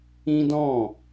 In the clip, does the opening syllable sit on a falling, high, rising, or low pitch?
high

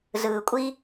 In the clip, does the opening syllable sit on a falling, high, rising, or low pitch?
low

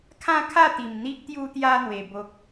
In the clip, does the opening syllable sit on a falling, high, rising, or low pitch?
falling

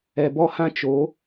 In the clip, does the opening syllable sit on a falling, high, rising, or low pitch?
low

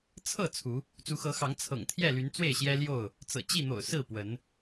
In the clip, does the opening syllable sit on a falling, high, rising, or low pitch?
falling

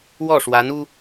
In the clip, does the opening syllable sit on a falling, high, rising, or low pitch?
falling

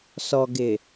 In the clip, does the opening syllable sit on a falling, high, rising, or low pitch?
low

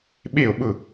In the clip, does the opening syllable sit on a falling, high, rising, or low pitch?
falling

